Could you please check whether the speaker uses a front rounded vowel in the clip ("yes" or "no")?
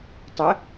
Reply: no